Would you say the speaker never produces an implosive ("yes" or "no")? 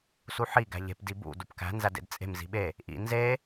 no